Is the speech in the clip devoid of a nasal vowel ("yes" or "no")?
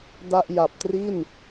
yes